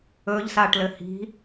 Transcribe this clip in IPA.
ɵ ʎ s a ʈ l ɘ h i̤

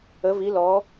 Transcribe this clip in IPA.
ə˩˧ v i˩˧ l ɔ˩˧

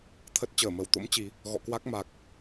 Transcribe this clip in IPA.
t̪ʰ ə˦˥ t̚ t͡ɕ əː˧˩ m ə˧˩ w t̪ o̰˧˥ m t͡ɕ i˨˦ | ɣ ɔ̰˧˨ k w a˦˥ k̚ m a˨˩ k̚

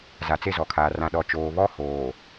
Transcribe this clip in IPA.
z a˨ t͡s e˦˨ z ɔ˨ kʰ aː˨ r ã˨ ɗ ɔ˨ t͡ʃ oː˨ β ɔ˦ h oː˨

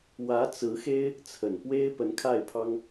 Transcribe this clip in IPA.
w ä˧˥ t͡s ɹ̩˧˥ x e˥ ɪ̯ | t͡sʰ ə˨˩ n p w e˥ ɪ̯ p ə˧˥ n kʰ a˥˩ ɪ̯ pʰ ɑ˥ ŋ

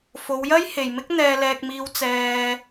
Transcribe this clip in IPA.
f o˨˧ w j ɐ˥ j h e˨ j m ɪ˥ k̚ n̪ ɛː˧ l ɛː˧ k̚ m iː˧ w t͡s ɛː˧

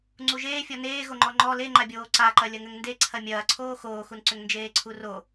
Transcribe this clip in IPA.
ŋ͡ǀ u ʒ eː fʲ ɔ n eː ɣ o ŋ͡ǃ ɔ ŋ͡ǃ ɔ l e ŋ͡ǃ a bʲ oː ǀ a ǃ ɐ lʲ ɐ ŋ ʏ ŋ n d e ǀʰ ɐ mʲ ɐː ǀʰ oː x oː x u n ǀ ʏ ŋ n d͡ʒ eː ǀʰ u r o

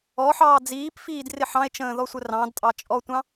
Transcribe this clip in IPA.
ɔ ħ ɑː d͡z iː p f iː d r ɪ ħ ɑ̃ e̯ t͡ʃ ə̃ː ð ɔ sʷ ə r ɑ̃ d tʼ ɑ t͡ʃʼ ɔ tʷ ɑ̃

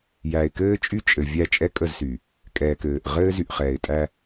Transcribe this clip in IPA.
j æ˨ ɪ̯ k ɘː˦ t͡ʃʼ y˦ t͡ʃʼ ɘ˨ vʲ æ˦˨ t͡ʃʼ ɛ˦ kʼ ə˦˨ z s y˨ | kʼ ɛː˨ k ɘː˨ ʔ ʁ ɘː˦ z y˨ ʔ χ ɛː˨ ɪ̯ tʼ æ˦

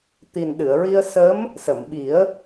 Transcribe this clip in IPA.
t̪ i˨˩ n ɗ ɨ˨˩˨ ə̯ ɹ i˧ ə̯ s ə˧˥ m | s ə˨˩˨ m ɓ i˨˩˦ ə̯

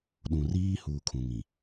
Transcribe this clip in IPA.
ɗ ũ˨ r iː˦ h uː˨ kʰ ũ˨ ŋ ĩ˨

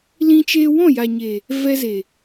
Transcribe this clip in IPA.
l ĩ˦ t͡ʃ eː˦ w ɔ̃˦˨ j a˨ ɲ e˨ | v ɛ˧ z e˨

